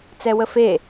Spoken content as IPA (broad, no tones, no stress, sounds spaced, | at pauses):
t͡s ɛ w ə f e